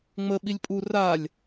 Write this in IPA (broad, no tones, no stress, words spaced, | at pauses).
ŋ͡mə ɓilʲpʼu ralʲ